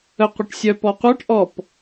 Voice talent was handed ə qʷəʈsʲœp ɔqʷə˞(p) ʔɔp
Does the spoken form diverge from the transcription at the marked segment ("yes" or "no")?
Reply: yes